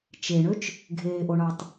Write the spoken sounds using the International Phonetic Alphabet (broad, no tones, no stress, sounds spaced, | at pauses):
t͡ʃ e ɳ ø t͡ʃ | ɡʱ eː ʔ o ɳ ɑ tˤ